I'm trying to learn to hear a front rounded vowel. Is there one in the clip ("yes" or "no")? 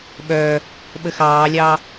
yes